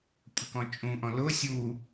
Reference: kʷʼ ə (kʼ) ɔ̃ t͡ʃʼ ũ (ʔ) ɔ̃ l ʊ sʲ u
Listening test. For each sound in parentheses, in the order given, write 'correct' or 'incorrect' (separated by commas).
incorrect, correct